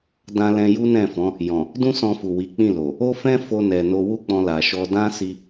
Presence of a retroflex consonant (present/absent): absent